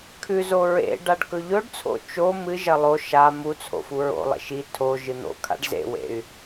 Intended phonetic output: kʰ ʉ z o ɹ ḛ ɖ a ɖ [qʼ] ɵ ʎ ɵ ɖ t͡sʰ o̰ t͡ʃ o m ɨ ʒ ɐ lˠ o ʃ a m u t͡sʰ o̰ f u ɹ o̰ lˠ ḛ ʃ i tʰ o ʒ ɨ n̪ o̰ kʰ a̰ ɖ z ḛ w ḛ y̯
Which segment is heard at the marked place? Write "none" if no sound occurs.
k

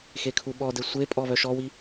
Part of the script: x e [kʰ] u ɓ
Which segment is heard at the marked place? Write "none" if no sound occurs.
kʰ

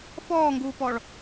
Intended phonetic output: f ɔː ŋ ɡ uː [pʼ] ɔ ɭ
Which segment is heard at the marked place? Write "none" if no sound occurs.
p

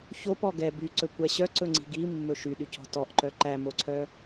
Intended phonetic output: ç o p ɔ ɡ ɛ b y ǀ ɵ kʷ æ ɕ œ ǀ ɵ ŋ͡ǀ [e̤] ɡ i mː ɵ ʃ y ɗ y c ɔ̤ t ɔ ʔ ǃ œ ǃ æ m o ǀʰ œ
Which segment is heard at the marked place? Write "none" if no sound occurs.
i̤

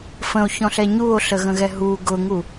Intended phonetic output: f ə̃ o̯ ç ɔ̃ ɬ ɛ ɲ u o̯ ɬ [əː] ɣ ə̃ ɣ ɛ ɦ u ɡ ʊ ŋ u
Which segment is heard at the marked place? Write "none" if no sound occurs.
ə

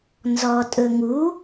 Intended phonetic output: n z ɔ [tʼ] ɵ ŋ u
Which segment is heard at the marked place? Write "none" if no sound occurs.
tʼ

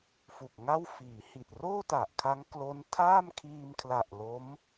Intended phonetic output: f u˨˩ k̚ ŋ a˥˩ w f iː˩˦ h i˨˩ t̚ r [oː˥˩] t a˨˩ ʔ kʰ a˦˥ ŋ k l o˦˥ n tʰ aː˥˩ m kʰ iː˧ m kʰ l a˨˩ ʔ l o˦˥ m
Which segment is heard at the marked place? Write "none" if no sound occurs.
oː˥˩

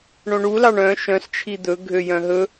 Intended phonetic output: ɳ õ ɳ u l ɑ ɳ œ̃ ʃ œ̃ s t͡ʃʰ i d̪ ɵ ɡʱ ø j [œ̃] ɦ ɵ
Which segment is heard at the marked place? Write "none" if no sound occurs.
œ̃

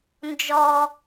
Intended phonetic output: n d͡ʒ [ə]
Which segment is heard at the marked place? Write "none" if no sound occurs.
ɔ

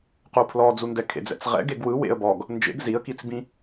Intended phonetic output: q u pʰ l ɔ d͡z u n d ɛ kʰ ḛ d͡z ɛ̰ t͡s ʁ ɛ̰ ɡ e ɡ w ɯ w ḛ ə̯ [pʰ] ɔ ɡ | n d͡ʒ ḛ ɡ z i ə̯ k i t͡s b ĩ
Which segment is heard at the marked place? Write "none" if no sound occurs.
b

